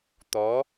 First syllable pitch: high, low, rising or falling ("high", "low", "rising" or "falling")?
rising